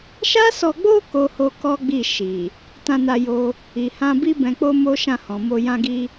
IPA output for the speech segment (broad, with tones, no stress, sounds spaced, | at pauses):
ʃ a˦ s ɔ˧ ɡ͡b o˦ k o˦ h o˦ k ɔ˦ ɡ͡b i˦˨ ʃ i˨ | t ã˧ n a˧ j o˧ | i˨ h ã˧ b i˦ b ɛ̃˧ k͡p o˦ m o˦ ʃ ã˦˨ h ɔ̃˨ m o˧ j ã˧ ɡ i˧